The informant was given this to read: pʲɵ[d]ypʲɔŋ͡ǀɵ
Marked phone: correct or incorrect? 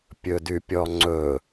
correct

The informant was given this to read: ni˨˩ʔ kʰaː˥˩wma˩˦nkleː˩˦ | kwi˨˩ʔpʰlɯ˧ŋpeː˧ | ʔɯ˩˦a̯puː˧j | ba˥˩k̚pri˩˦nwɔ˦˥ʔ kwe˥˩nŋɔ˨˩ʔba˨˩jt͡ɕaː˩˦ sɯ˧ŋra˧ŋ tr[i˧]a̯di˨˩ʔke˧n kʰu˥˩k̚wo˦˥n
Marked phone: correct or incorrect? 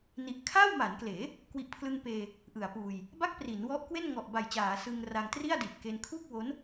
incorrect: i˥˩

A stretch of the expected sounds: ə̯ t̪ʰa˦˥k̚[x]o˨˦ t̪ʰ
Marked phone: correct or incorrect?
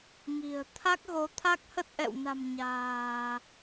incorrect: ɣ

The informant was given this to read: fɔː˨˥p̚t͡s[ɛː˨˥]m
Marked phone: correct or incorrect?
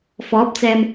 incorrect: ɛː˨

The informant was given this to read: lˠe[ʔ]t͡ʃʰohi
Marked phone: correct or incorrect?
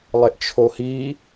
correct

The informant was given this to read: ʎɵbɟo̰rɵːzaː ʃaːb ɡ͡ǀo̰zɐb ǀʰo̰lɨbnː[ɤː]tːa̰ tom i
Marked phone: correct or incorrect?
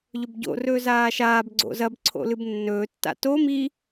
incorrect: ɵː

